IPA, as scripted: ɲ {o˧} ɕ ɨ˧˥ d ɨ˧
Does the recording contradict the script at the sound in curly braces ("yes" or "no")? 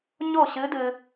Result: yes